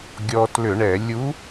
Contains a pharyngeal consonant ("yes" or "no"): no